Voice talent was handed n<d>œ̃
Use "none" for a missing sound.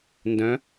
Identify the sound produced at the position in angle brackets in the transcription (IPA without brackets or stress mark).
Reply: d